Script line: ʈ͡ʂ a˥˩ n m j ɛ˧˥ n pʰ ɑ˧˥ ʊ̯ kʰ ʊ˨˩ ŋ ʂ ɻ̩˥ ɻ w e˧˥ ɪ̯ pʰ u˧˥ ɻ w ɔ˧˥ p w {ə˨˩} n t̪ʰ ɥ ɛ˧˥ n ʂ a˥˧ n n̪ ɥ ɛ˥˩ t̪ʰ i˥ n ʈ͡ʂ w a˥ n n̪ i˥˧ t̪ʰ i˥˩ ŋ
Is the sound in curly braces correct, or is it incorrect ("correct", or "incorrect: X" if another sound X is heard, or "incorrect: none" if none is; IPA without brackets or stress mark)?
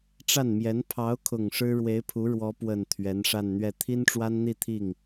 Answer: correct